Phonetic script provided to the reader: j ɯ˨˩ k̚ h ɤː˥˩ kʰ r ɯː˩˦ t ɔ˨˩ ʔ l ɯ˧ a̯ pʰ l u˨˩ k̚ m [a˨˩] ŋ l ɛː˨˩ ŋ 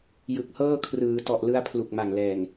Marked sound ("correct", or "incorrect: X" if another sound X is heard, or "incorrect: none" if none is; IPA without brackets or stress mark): correct